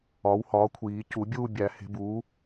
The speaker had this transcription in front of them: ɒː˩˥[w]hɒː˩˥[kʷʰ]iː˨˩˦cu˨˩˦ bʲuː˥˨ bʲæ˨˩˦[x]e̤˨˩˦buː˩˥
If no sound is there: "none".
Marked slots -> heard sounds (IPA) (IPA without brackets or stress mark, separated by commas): w, kʷʰ, h